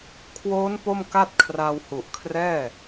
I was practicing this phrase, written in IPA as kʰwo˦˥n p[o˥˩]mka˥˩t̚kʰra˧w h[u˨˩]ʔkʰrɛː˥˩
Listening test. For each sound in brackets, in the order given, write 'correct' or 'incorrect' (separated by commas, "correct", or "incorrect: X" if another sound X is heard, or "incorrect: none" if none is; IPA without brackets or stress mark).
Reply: correct, correct